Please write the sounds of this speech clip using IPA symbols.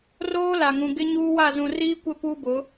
roː˦la˨ŋũ˨ ɡɪ˦ɲuː˦wa˦˨ zũ˨riː˦kʷɪ˦˨ puː˦bʊ˨˦

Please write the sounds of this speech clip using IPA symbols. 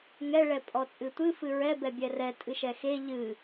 ŋɛɭɛ pʼɔt͡sʼɨtʷɨfɨ ɹɛbɛ bʲɛrɛ tʼɨʃɛxe ʎɨ

